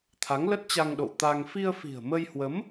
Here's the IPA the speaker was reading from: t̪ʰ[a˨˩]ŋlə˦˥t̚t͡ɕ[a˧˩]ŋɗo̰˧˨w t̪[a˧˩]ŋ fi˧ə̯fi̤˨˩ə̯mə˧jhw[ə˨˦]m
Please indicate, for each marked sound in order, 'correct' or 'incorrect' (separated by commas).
incorrect, incorrect, incorrect, correct